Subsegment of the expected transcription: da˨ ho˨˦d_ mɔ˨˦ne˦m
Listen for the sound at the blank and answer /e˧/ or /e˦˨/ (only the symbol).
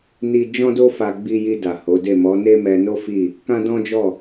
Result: e˦˨